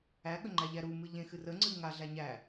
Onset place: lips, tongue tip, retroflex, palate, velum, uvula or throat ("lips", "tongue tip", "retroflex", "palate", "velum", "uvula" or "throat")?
velum